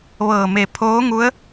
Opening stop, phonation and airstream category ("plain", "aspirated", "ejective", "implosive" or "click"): aspirated